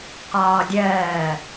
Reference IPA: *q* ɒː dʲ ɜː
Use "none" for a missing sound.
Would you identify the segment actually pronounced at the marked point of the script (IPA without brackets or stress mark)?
q